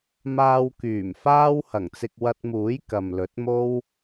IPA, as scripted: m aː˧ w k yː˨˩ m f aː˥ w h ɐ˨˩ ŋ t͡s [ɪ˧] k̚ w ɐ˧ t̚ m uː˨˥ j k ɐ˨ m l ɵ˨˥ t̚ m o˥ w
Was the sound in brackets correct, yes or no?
yes